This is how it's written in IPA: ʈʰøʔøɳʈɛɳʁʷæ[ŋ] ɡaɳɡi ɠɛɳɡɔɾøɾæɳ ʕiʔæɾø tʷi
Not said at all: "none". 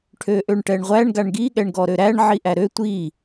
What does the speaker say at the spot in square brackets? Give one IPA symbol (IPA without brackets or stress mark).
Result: ɳ